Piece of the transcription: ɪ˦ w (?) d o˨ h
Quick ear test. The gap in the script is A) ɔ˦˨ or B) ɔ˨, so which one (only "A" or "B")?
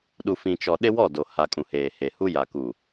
A